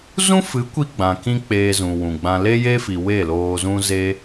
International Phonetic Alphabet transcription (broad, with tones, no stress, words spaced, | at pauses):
zũ˦fɨ˨˦kʷi˧ ɡ͡bã˨kĩ˦ k͡peː˧zũ˨wũ˨ɡ͡bã˧ le˦je˦fi˨ we˦˨loː˧zũ˦ ze˦